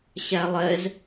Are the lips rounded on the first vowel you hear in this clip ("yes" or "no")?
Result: no